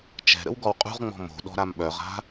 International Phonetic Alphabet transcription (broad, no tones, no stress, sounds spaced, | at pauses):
t͡ʃ ɛ̤ ɾ ə̰ w ɡ ɔ w qʼ ṳ ʁ ŋ͡m ɔ̤ m o̤ ɗ ɔ̤ ɾ a m ɓ œ ʁ a̤